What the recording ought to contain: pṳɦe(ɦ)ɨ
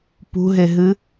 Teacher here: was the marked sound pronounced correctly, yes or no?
yes